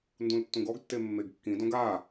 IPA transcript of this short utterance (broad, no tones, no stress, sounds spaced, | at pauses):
n d ũ l tː ũ ɡ ɔ ɡ tː e mː e ɡ kː ĩ d õ ɡ a